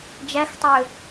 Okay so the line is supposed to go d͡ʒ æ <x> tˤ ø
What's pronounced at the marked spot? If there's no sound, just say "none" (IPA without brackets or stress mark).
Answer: x